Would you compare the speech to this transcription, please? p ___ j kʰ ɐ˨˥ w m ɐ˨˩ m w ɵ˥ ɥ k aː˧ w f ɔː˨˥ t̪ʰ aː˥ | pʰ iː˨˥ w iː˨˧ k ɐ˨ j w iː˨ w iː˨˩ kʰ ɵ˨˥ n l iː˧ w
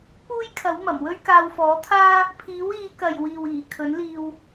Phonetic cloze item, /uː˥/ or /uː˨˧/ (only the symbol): uː˥